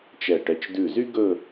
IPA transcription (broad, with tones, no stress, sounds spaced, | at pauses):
t͡ʃ ɛ˧˩ ʈ ɛ˧˩ t͡ʃ d ʉ˧˩ z y˥ ɡ ɵ˥˧